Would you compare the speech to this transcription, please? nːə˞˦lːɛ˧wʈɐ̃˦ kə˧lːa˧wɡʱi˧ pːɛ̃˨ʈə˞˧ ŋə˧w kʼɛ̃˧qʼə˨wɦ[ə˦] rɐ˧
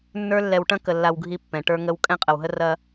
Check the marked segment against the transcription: incorrect: ə˧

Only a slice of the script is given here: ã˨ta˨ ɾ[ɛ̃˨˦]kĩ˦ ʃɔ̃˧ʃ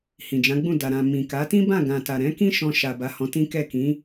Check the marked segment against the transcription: correct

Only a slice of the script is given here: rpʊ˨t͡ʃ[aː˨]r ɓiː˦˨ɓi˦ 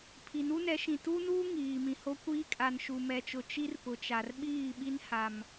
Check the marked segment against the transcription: incorrect: a˨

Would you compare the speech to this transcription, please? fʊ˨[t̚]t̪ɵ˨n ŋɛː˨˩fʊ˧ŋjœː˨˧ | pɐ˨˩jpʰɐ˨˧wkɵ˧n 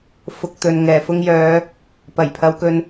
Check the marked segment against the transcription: incorrect: k̚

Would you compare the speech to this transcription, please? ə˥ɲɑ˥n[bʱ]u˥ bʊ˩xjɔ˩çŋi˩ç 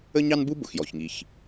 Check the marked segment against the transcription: incorrect: b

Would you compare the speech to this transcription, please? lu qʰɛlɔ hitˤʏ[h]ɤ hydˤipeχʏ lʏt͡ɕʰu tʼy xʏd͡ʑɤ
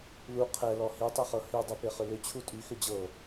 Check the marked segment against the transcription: incorrect: χ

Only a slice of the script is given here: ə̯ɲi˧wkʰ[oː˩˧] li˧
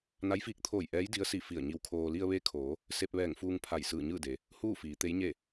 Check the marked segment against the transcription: incorrect: oː˧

